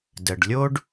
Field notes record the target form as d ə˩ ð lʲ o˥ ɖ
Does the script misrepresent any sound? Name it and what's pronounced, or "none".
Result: ð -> ɖ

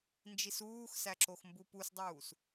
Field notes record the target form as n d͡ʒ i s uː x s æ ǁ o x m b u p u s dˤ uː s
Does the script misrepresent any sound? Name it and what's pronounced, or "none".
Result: none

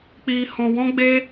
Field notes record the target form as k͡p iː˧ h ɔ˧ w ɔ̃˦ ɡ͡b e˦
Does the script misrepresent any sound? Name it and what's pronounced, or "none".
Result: ɔ˧ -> ɔ̃˧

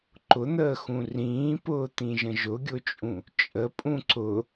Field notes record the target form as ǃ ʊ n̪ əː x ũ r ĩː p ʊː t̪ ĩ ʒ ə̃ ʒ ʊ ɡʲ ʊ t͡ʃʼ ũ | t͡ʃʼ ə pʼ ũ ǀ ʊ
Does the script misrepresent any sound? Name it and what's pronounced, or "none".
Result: none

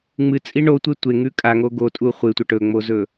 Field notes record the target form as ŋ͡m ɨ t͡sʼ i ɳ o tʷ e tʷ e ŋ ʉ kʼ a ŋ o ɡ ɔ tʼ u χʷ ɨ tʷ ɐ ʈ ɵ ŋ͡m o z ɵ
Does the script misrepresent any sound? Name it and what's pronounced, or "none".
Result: ɔ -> o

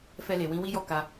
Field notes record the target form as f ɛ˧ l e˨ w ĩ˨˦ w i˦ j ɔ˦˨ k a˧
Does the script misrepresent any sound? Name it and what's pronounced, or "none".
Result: none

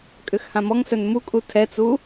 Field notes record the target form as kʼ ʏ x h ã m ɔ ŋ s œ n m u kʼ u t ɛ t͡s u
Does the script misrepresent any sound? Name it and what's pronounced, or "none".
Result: t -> tʰ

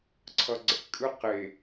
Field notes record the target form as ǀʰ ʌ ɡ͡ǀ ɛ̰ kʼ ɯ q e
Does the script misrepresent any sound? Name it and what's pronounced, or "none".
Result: none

